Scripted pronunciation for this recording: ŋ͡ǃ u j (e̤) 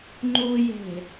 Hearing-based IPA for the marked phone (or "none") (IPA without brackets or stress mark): e̤